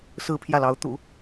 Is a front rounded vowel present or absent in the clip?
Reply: absent